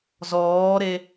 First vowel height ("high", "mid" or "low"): mid